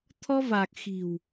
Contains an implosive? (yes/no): no